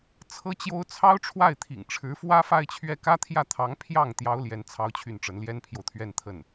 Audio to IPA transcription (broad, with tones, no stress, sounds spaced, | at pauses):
t͡sʰ ɤ˥ t͡ɕ j o˥ ʊ̯ t͡sʰ ɑ˥ ʊ̯ ʈ͡ʂʰ w a˥˩ ɪ̯ t̪ʰ ḭ˨˩ ŋ ʈ͡ʂʰ ɻ̩˧˥ f w ä˥ f a˥˧ ɪ̯ t͡ɕʰ ɥ ɛ˥˩ k ä˥ t̪ʰ j ä˥˩ t̪ʰ ɑ˧˥ ŋ pʰ j ɑ˥˩ ŋ t̪ j ɑ˥ ʊ̯ l j ɛ˧˥ n t͡sʰ ɑ˥ ʊ̯ t͡ɕʰ y˥˩ n ʈ͡ʂ ə˧˥ n l j ɛ˥ n pʰ j o˨ ʊ̯ t̪ʰ ɥ ɛ˥˧ n t̪ʰ ə˥˩ n